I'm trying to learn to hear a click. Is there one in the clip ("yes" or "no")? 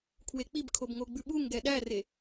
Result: no